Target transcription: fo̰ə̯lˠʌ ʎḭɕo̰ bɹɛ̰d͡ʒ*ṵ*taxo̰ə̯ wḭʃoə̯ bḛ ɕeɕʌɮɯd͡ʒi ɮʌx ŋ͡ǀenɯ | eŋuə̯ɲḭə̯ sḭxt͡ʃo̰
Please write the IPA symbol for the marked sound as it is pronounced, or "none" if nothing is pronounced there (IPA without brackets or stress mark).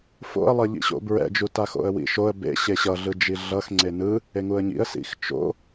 u